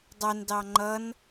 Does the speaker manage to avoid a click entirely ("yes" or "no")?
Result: no